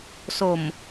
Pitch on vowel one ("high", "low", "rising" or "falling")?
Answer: low